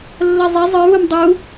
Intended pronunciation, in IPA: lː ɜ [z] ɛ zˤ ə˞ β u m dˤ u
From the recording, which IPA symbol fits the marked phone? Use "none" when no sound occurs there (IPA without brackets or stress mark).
zˤ